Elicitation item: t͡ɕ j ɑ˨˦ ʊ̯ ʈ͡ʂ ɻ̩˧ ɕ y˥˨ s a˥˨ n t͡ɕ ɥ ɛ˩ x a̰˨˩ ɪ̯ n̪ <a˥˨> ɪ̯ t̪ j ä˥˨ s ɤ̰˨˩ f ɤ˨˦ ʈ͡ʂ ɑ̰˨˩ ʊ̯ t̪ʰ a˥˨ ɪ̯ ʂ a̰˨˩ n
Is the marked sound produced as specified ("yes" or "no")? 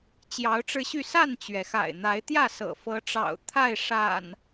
no